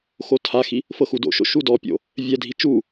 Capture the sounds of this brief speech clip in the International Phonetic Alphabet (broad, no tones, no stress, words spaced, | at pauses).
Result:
xotʰaxi | fɤxudo̰ʃo̰ ʃudɔpʲo̰ | vʲɛdʱi t͡ʃu